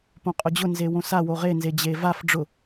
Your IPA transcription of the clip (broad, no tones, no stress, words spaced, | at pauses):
põqʼʊd͡ʑʊ nzewõsa woʁe nzed͡ʑevaf ɖ͡ʐʊ